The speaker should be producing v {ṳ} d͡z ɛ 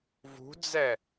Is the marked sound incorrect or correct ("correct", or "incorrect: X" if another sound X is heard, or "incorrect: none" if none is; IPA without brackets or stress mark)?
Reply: correct